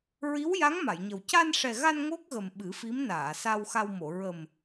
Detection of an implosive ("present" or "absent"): present